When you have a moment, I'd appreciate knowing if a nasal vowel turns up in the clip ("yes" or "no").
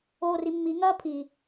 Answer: no